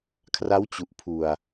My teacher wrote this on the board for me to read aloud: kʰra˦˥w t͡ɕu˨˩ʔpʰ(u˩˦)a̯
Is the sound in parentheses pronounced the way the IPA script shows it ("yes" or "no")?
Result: no